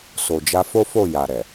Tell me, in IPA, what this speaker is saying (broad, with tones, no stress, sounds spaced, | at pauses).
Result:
s o˨ d͡ʒ a˧ f o˦ f o˦˨ j a˨ ɾ ɛ˨